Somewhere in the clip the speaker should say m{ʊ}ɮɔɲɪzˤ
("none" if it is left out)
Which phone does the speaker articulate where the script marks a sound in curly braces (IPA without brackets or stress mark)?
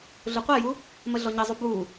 ə